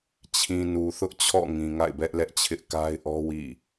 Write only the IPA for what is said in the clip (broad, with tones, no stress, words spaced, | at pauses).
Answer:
t͡ɕʰĩ˨nu˨θʊ˦ʔ t͡ɕʰɔ̰˦˨ŋĩ˨ ŋa̰˦˨ɪ̯bɛ˦ʔlɛ˦ʔt͡ɕʰɪ˦ʔ ka˦ɪ̯ʔɔ˦wḭ˦˨